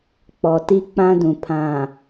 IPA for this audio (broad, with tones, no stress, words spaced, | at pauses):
k͡pɔ˨ti˦k͡pã˦dũ˨ pʰã˨